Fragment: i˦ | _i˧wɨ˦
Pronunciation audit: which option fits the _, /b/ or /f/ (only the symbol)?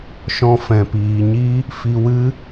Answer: f